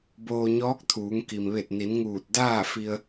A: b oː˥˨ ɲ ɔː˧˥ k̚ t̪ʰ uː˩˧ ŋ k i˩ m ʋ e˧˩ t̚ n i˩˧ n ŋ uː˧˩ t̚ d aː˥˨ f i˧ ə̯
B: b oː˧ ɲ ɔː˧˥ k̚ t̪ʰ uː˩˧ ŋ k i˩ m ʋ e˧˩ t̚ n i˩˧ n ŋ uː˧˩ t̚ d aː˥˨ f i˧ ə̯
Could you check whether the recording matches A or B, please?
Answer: B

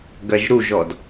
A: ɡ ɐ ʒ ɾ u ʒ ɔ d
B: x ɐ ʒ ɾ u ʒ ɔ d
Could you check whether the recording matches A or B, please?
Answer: A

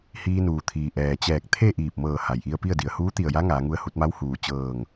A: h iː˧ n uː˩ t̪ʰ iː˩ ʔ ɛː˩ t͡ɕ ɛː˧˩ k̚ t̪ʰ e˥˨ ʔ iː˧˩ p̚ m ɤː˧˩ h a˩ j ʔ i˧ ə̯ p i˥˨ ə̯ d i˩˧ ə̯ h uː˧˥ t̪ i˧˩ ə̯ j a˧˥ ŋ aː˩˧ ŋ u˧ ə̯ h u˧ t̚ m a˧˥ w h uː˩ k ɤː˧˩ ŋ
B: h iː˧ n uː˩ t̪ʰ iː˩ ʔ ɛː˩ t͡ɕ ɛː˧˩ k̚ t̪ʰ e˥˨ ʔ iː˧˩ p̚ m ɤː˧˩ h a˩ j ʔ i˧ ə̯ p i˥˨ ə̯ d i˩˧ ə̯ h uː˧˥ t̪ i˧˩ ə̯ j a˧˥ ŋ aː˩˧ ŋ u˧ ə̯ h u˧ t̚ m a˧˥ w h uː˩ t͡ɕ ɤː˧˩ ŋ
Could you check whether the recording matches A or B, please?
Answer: B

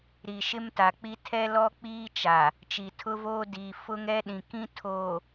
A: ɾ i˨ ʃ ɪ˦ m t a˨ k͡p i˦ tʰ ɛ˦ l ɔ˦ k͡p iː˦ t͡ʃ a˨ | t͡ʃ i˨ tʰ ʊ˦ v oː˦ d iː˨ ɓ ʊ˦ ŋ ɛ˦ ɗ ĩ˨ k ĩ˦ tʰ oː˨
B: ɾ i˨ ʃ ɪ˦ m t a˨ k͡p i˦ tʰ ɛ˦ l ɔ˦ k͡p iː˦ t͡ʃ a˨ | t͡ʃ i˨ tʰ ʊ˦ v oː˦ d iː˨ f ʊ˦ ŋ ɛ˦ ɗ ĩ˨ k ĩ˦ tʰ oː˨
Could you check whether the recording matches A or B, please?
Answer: B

